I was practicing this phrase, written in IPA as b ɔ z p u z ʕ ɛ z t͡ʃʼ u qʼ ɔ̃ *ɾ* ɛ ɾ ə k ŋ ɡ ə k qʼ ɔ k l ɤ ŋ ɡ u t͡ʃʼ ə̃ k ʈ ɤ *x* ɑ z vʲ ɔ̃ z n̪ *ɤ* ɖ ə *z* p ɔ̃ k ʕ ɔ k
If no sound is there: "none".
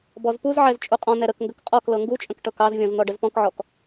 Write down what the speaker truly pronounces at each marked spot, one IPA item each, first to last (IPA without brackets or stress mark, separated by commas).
n̪, k, ɔ, z